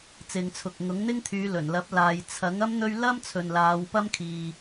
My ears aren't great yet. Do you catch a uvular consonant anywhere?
no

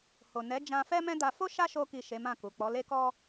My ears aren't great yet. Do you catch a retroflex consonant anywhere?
no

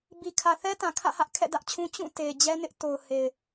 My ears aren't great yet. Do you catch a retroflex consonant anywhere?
no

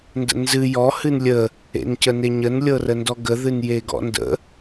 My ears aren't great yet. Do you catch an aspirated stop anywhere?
no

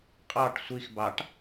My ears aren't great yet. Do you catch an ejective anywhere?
yes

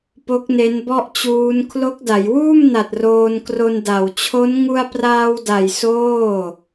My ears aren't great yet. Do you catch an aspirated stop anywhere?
yes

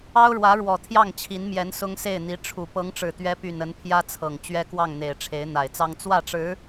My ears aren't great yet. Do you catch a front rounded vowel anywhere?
yes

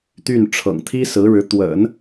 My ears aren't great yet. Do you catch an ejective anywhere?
no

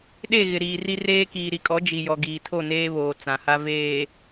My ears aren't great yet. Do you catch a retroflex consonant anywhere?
no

